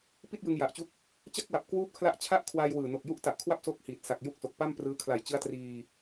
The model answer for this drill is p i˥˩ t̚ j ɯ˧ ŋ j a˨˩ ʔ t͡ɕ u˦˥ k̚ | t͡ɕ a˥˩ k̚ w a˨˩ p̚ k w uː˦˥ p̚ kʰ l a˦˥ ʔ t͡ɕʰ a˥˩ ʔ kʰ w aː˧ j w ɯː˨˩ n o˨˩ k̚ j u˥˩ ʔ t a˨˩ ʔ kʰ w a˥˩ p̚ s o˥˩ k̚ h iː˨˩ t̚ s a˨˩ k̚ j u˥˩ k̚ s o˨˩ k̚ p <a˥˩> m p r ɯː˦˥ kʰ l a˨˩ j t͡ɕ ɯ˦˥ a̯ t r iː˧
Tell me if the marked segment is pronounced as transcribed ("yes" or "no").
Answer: yes